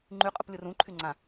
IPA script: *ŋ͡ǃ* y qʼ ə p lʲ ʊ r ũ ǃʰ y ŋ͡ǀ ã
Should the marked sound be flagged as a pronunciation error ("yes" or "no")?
no